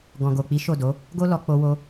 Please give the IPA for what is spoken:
ɡ ɔ̃˨ ɡ o˨ k͡p i˨˦ ʃ o˦˨ d o˨˦ | ɡ o˦ l ɔ˧ k͡p o˧ w o˧

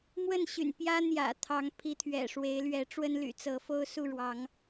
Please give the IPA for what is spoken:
m w ə˥˨ n ɕ y̰˨˩ n p j ä˦ n̪ j ä̰˨˩ t̪ʰ ɑ˨˦ ŋ pʰ i˨˦ t̪ʰ ɥ ɛ̰˨˩ ʂ w e˨˦ ɪ̯ l ɥ ɛ˨˦ ʈ͡ʂ w ə˦ n l y̰˨˩ t͡s ɤ˨˦ f o˦ ʊ̯ s u˥˨ ɻ w ɑ˨˦ ŋ

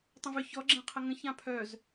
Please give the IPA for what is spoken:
tˤ ə̃ v ʏ ç ɔ ɡ͡ǁ ɛ̃ qʰ ə ŋ ə̃ ç ã pʰ œ z

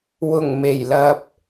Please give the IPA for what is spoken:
w ʊ˨˩ ŋ m e˨˩ j l ɐ˧ p̚

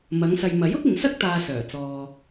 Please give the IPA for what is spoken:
m ɐ˨˧ ŋ s ɐ˨ j m ɐ˨˥ j ʊ˥ k̚ ɪ˨ ŋ s ɐ˥ k̚ t̪ aː˧ s œː˨˩ t͡s ɔː˧

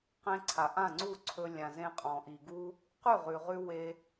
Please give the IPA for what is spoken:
q ẽ˧ ǀʰ a˩ ʔ ã˥˩ ŋ͡ǀ u˥˩ ǀʰ ɵ˧ lʲ ã˩ z ẽ˧ qʼ ɔ̃˩ ʔ i˩ ɡ u˧ | q ʉ˥˩ ʁ ʉ˩ ʁ ʉ˧ w e˧

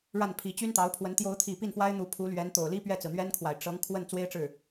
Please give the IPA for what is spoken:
ɻ a˥˩ n pʰ i˧˥ t͡ɕ y˥ n t̪ ɑ˧˥ ʊ̯ pʰ w ə˧˥ n t̪ j o˧˥ ʊ̯ t̪ʰ i˨˩ p i˥˩ n f w a˥ ɪ̯ n̪ u˧˥ pʰ u˧˥ l ɥ ɛ˧˥ n t̪ o˨˩ ʊ̯ l i˥ p ɥ ɛ˥˩ t͡s ɹ̩˩ n̪ ɥ ɛ˥ n kʰ w a˨˩ ɪ̯ ʈ͡ʂ ɤ˧˥ ŋ kʰ w ə˥˩ n t͡s w e˥ ɪ̯ ʈ͡ʂ ɻ̩˥˩

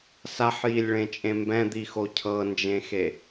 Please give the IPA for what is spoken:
s a ħ j i lʲ ɭ ẽ t͡ʃʼ ẽ m b ɛ̃ d̪ i x o cʰ ɤ n d͡ʒ ẽ x e

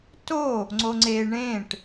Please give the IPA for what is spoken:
t o | ŋ͡ǀ o ŋ͡ǀ e ɳ ẽ ʈ

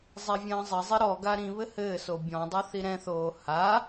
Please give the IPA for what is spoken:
zˤ ɛ vʲ ɐ̃ː zˤ ɘ zˤ i ɾ ɔ ɡ a ɾ ĩ β ɘ h ɘː s o bʲ ɔ̃ dˤ ɨ θ i ɾ ɛ̃ θ oː h a

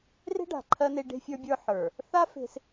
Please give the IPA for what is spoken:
r e̤˦ ɖ a̤˨ ǃʰ ɜ˦ n e˦ ɖ e̤˦ fʲ ə˞˦ bʲ ə˞˦ ħ ə˞˨ | θ a˦ f e̤˦ s

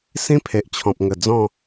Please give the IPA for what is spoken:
s ĩ˦ pʰ e˨ ʔ t͡ɕʰ ɔ̃˨ p̚ ŋ ə˨˩ d͡z ɔ̃˥˧

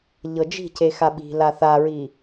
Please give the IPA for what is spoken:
ʎ ɤ d͡ʒ i̤ c e x a ɓ i̤ l a θ a ɹ i

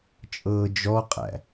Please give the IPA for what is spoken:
t͡ʃʼ ɤː d͡ʒ ɔ qʼ æ̰

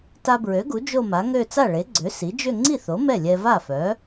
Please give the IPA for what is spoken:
t a˧ b ɹ ø˩˥ ɡ u˩˥ d͡ʒ o˥˧ m a˩˥ ŋ ø˥˧ t͡s a˥˩ ɭ e˩˥ ɡ͡ǀ ø˩˥ s i˩˥ d͡ʒ ø˥˧ ŋ͡ǀ i˥˩ θ o˩˥ m ɛ˥˩ lʲ ɛ˧ v a˥˩ f œ˩˥

